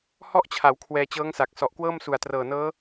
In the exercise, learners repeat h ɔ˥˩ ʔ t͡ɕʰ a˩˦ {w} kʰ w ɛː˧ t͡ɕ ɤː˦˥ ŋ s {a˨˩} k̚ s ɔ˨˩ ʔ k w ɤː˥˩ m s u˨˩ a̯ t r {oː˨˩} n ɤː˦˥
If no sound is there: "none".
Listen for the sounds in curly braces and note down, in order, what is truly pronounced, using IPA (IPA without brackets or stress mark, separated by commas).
w, a˨˩, ɤː˨˩